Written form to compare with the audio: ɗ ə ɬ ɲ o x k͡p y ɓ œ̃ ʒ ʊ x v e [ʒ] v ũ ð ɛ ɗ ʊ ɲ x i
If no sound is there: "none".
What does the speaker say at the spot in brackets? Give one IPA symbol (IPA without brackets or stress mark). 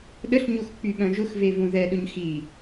none